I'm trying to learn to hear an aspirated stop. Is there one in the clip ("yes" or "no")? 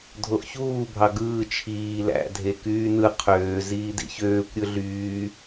yes